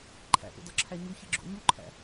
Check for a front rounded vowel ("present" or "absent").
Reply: absent